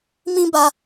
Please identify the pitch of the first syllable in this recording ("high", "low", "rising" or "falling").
high